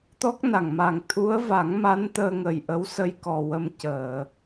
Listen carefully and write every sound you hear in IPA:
t̪ ɔ˦˥ k̚ n a˨˩ ŋ m a˨˩ ŋ t̪ʰ u˧˥ ə̯ v a˨˩˦ ŋ m a˧˥ n t̪ əː˧ ŋ ə˨˩ j ʔ ə˧˥ w s ə˧ j k ɔ˨˩ w ə˧ m c əː˨˩˨

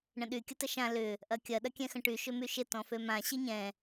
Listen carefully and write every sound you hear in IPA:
ɳ ə̃ ɗ y kʲ ə t ə ʃ ã l ʏ | ʔ ɐ kʲ ɐ ɗ ɐ kʲ ɛ̃ x ə̃ ʈ y ʃ ʏ m y ʃ ɪ t ɔ̃ f ø m ã ɕ i ɲ ɛ̃

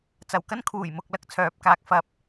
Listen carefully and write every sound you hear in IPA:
t͡s ɐ˨˩ w k ɐ˥ n kʰ uː˨˩ j m ʊ˨ k̚ l ɐ˧ k̚ t͡sʰ œː˨˥ p̚ k aː˨˥ k̚ f ɐ˨˥ p̚

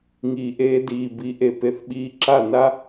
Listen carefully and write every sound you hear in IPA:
ŋ iː˨ ʔ eː˧ d iː˨ b i˨˦ ʔ e˨ p e˧ θ ɓ iː˧ ǁ a˦˨ n a˦

